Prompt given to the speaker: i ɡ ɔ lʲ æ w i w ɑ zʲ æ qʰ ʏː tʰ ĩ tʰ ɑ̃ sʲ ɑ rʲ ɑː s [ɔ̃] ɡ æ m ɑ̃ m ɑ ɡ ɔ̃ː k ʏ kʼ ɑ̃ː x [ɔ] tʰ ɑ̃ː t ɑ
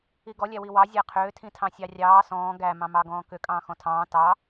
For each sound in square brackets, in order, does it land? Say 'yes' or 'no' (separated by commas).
no, no